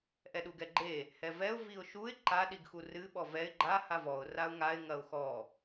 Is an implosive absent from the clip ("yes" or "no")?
no